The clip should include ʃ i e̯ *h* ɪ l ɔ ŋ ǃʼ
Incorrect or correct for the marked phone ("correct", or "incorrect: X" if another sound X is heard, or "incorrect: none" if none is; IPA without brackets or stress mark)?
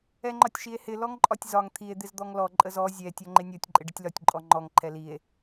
correct